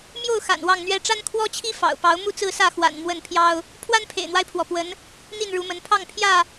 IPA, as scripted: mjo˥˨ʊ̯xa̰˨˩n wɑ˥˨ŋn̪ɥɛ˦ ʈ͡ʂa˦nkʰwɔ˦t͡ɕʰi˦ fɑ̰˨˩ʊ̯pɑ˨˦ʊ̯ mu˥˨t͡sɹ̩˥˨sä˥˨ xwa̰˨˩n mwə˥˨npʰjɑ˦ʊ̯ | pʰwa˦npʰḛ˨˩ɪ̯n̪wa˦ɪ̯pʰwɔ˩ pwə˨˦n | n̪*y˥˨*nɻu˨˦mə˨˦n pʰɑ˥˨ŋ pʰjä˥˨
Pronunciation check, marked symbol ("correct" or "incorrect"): incorrect